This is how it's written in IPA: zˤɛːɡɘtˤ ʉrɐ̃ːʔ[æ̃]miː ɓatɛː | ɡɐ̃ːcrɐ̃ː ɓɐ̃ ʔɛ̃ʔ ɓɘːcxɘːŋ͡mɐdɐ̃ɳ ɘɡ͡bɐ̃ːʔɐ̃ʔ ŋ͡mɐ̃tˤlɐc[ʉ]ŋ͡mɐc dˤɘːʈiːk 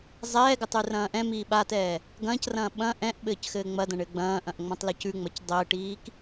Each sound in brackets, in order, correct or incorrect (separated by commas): incorrect, correct